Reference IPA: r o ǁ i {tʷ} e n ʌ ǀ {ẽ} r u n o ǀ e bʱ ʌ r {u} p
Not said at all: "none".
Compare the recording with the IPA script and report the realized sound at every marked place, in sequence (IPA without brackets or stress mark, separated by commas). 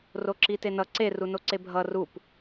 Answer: t, e, u